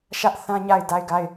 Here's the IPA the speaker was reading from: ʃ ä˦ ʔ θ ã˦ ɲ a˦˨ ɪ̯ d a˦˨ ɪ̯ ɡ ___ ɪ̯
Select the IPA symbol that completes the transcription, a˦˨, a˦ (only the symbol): a˦˨